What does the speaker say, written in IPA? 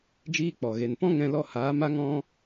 d͡ʒ iː˦ k͡p ɔ˨ ɣ e˨ n p ɔ̃˦ ŋ ɛ̃˦ l ɔ˦ h aː˨˦ m a˦ ŋ ɔ̃˦

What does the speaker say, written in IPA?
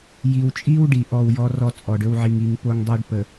j i˨ w t͡ʃʼ i˦ w ɖ i˨ ʔ ɔ˦˨ w j ɔ˦ r ɔ˦ t͡sʼ ɔ˨ ɖ ɵ˦ w ʕ i˨ ŋ i˨ ŋ p o˦ ŋ dˤ o˦ ɖ p ə˨

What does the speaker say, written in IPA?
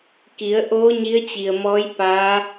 k i˩˧ ə̯ ʔ oː˧˥ ɲ i˧˥ ə̯ t͡ɕ i˩ ə̯ m ɔː˧˥ j p aː˧˥

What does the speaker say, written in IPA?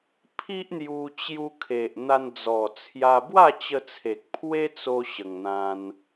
pʰ i˦ ʔ n̪ j u˧ t͡ɕ j u˧ kʰ e˨ ʔ n̪ a˧ n d͡z ɔ˨˩ t͡sʰ j a˧ b w a˥˧ t͡ɕ ə˧ t͡sʰ e˨ k̚ pʰ w e˦ t͡s o˧ ɕ ə˨˩ ŋ n̪ ã˧ n

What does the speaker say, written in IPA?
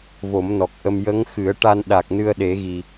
v o˨˩˦ m n ɔ˨˩ k̚ ʔ ə˧ m j ə˧˥ ŋ x ɨ˨˩˦ ə̯ ʈ a˧ n ɗ a˨˩ k̚ n ɨ˧ ə̯ ɗ e˨˩˦ ɣ i˨˩

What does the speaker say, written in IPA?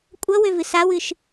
kʷʼ ʌ w ø v ɨ s a w ɨ ʃ

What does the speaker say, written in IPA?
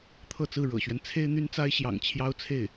t̪ʰ ɤ˥˧ t͡s ɹ̩˥˩ ɻ ɤ̰˨˩ ɕ ɥ ɛ˦ n t͡sʰ e˥ ɪ̯ n̪ y˥ n t͡s a˥ ɪ̯ ɕ j ɑ̰˨˩ ŋ t͡ɕʰ j ɑ˥ ʊ̯ t͡sʰ e˥˩ ɪ̯

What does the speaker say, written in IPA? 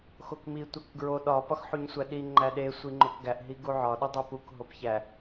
x o k m i tʷ æ k ɡ ɹ o ɗ ɒ p ɒ x ħ u ɲ sʷ æ ɗ i ŋ͡ǃ æ ɗ e sʷ i ŋ͡ǃ o k ɡ æ ʔ ɦ i ɡ u ʕ ɒ ɗ u dˤ o p u k ɦ o p ç æ

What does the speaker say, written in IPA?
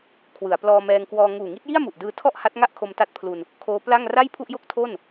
kʰ w ɯ˩˦ a̯ p l ɔː˧ m ɛː˧ ŋ k w ɔː˧ ŋ uː˨˩ ŋ i˦˥ t̚ j i˥˩ a̯ m u˨˩ ʔ d ɯː˧ tʰ ɔ˥˩ ʔ h a˦˥ t̚ ŋ a˥˩ ʔ kʰ o˧ m t a˦˥ t̚ pʰ l u˧ n | kʰ oː˦˥ p l a˥˩ ŋ r a˥˩ j pʰ u˥˩ ʔ j o˥˩ k̚ tʰ o˥˩ n

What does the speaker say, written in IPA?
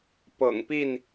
p ɤ̰˨˩ ŋ p i˥˨ n

